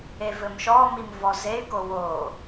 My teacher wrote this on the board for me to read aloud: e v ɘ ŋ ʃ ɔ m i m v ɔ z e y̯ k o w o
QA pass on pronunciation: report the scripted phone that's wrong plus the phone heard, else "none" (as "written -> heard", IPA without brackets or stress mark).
ŋ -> m